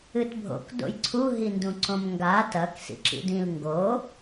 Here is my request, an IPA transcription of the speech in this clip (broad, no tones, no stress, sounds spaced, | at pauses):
ɨ t bʱ o̰ k d o̰ j ǀʰ u ɦ i n d ũ ǀ õ m ŋ ɡ a t ɐ k s ḭ ǁ ḭ d ĩ l ŋ ɡ o